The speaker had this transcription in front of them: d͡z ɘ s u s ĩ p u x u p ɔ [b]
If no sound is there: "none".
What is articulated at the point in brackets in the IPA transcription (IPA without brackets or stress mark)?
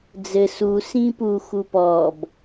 b